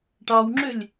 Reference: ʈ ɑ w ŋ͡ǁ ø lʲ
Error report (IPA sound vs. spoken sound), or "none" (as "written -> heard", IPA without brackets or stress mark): none